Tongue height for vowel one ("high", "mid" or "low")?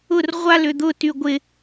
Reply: high